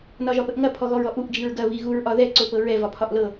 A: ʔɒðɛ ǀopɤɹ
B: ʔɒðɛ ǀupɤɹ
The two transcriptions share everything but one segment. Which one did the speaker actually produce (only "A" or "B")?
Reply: A